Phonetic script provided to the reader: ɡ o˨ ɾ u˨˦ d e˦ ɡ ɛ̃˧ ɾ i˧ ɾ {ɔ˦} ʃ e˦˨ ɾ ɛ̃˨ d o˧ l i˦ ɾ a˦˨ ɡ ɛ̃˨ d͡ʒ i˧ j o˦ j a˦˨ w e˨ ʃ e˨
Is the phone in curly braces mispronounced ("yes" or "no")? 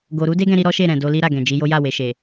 no